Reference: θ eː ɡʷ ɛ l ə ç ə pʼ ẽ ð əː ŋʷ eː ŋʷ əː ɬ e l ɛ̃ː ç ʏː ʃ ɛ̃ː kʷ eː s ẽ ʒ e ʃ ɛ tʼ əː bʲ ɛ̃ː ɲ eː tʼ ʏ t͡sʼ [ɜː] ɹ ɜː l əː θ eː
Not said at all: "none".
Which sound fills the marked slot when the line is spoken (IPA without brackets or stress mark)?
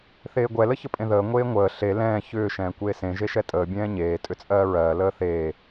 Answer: ɜː